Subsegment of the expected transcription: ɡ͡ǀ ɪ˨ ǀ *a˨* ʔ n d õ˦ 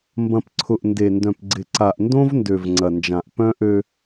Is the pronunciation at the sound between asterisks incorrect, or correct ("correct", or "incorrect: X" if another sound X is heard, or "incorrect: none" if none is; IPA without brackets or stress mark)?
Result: correct